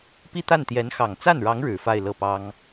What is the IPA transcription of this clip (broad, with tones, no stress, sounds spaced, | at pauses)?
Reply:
p i˥˧ t̪ a˥˩ n t̪ j ɛ˧˥ n x ɑ˨˩ ŋ t͡s a˥˩ n ɻ ɑ˧˥ ŋ ɻ ɻ̩˨˩ f a˥˧ ɪ̯ l ɤ˥˩ p ɑ˥ ŋ